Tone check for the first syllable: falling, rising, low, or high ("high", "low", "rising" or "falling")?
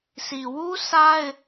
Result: low